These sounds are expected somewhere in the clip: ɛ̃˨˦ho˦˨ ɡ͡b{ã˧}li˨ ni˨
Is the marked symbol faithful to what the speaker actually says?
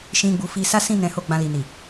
yes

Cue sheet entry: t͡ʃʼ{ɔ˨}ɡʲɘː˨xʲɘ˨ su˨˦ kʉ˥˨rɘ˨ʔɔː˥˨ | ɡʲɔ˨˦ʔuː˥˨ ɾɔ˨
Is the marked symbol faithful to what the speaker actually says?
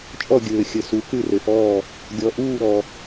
no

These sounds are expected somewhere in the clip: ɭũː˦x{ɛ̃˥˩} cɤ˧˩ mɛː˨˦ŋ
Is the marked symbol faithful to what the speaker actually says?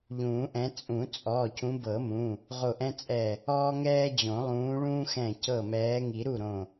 no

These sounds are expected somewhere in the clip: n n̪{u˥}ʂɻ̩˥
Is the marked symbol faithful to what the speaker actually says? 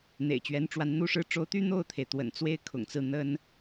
yes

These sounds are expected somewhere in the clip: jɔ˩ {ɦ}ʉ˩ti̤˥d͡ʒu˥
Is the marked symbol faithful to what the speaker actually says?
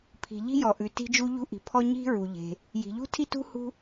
no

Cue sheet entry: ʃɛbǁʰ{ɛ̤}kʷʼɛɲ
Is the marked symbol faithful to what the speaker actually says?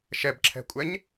yes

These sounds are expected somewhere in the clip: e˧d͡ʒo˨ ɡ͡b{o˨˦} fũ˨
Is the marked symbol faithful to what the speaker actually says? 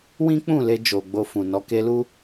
no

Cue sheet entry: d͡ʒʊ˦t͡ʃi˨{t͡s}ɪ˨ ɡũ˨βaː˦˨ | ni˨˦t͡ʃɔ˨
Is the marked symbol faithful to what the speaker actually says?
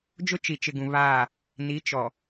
no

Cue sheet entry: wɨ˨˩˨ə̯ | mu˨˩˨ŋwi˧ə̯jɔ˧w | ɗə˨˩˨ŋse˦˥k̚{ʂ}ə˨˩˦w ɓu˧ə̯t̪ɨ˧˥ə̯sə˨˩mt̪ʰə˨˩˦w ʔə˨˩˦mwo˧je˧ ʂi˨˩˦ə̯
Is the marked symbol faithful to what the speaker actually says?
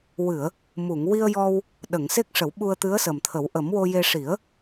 yes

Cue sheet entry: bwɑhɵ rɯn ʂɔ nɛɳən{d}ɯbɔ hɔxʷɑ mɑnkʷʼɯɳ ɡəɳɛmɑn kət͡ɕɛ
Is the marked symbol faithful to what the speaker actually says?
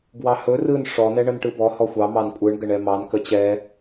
no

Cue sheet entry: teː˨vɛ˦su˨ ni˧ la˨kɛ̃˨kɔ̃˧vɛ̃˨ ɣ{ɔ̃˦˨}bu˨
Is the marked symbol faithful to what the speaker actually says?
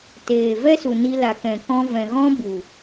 no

